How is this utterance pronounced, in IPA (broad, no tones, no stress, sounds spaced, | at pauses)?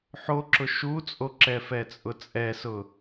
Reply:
ħ o ǁ ʊ ʃ u t͡sʼ o ǁ ɛ f ɛ t͡sʼ ʊ t͡sʼ ɛ s ʊ